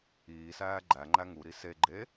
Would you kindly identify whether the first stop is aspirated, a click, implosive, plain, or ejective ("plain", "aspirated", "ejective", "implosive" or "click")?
click